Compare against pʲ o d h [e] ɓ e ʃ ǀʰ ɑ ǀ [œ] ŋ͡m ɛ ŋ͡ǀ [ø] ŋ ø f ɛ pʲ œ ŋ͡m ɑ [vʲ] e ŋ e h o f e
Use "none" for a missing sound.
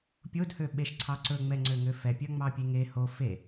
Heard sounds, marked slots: ø, ɵ, ø, pʲ

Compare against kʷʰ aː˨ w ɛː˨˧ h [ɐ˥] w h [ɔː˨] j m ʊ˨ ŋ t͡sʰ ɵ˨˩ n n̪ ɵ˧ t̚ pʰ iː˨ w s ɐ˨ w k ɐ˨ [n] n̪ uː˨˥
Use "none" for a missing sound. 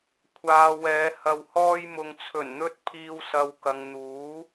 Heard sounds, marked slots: ɐ˧, ɔː˧, ŋ

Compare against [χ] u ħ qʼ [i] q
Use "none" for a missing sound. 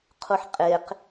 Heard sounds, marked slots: qʰ, e

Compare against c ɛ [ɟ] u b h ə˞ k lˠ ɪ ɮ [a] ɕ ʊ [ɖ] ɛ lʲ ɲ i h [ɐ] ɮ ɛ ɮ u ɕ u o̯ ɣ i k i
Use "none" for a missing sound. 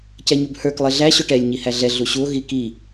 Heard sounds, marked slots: ɲ, æ, ʈ, æ

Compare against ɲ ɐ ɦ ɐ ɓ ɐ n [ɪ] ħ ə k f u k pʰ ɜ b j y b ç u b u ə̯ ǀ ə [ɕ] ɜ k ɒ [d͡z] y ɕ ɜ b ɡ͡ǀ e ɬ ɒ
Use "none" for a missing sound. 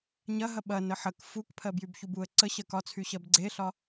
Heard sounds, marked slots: ə, ɕ, t͡sʰ

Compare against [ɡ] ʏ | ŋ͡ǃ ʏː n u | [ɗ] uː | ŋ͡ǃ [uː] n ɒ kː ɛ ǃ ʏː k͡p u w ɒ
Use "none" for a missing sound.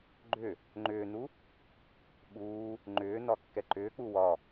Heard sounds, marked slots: ɡ͡ǃ, ɓ, ʏː

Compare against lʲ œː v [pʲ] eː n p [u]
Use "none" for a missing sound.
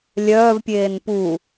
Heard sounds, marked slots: pʲ, u

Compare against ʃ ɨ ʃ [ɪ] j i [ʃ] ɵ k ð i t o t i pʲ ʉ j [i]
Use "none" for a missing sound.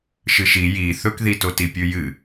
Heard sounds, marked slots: i, θ, ɨ

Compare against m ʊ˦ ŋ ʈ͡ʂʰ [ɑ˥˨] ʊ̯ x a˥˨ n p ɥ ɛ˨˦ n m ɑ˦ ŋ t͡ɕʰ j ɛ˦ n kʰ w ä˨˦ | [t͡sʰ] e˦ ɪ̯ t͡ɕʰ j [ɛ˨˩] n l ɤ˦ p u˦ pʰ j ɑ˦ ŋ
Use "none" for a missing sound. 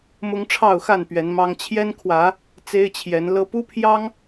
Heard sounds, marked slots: ɑ˥˨, t͡s, ɛ˨˦

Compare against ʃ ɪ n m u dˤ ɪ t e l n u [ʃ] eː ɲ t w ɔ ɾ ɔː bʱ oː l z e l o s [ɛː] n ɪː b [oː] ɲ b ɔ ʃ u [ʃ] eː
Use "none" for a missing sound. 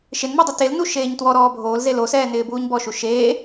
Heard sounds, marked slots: ʃ, ɛː, uː, ʃ

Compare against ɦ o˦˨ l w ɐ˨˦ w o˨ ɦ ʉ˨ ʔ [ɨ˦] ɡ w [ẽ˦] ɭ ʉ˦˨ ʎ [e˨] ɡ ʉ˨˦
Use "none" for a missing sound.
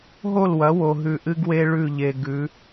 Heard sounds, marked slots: ɨ˦, e˦, e˨

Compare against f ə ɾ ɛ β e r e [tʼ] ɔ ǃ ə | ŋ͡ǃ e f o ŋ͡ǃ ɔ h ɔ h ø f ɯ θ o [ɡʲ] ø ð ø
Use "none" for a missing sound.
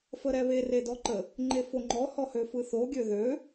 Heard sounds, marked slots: d, ɡʲ

